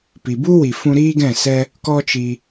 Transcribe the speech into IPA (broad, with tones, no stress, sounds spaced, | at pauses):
p i˨ b u˦ w i˨ f ũ˧ ɾ iː˦ ɡ ɛ̃˦˨ s ɛ˦ | k ɔ˦ t͡ʃ i˧